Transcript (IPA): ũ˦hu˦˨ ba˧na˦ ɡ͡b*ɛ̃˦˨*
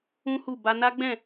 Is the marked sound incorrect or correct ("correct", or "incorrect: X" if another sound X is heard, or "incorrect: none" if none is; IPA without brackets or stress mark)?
correct